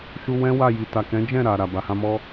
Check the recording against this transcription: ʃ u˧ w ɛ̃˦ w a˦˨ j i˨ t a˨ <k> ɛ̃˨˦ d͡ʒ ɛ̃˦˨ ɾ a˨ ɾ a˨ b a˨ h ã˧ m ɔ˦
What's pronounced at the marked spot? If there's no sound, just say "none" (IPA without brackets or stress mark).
k